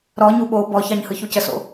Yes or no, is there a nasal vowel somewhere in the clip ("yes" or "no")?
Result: no